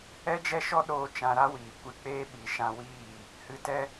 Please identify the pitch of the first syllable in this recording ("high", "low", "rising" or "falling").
high